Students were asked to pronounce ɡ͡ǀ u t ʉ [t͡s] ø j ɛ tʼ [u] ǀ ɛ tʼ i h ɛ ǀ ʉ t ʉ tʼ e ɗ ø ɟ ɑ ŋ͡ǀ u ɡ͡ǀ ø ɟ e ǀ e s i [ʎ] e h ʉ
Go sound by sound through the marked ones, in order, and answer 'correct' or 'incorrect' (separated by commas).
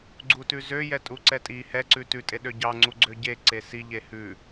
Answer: incorrect, correct, correct